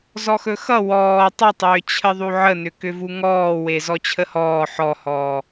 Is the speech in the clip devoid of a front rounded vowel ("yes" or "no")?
no